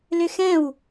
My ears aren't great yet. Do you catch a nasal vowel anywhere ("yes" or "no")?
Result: yes